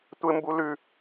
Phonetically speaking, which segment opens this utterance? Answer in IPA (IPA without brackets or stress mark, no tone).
tʷ